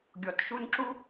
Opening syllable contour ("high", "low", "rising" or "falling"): low